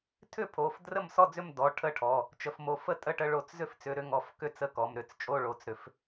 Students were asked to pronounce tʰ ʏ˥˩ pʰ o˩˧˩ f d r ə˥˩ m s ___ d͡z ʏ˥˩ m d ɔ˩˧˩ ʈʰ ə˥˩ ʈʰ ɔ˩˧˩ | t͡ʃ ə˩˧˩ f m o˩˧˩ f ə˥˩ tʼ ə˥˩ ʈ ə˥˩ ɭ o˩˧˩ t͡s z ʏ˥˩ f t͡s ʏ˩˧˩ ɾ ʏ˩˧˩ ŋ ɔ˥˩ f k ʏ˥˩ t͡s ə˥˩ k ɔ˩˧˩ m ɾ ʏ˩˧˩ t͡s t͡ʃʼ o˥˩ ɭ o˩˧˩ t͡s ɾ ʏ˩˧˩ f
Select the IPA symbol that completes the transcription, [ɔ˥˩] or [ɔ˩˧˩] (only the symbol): ɔ˥˩